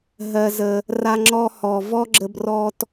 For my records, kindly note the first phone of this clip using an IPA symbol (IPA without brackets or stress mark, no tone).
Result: ɦ